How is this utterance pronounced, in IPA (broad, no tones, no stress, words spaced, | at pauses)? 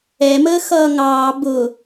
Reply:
ɛməː xʌːŋɑː bʊ